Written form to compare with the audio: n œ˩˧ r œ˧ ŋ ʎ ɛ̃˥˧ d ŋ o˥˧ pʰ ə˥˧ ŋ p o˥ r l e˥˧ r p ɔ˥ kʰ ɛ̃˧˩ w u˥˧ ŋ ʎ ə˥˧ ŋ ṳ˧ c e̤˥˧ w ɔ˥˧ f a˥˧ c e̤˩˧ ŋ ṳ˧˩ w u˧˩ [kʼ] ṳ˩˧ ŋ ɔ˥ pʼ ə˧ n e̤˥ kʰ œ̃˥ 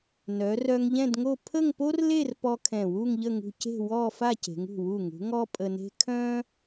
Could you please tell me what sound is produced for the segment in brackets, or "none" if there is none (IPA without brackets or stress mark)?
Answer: ŋ